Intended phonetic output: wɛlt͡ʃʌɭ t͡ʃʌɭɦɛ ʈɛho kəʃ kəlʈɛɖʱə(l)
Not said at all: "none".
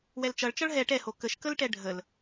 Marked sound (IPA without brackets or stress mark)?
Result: l